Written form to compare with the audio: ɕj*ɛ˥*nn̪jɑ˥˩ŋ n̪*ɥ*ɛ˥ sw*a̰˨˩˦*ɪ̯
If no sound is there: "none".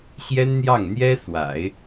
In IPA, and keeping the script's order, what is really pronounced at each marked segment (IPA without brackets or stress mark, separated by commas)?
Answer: ɛ˥, j, a̰˨˩˦